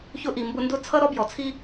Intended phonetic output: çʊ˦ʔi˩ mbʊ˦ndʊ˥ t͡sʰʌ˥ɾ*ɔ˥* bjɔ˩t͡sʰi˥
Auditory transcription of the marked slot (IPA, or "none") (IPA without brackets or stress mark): ɔ˥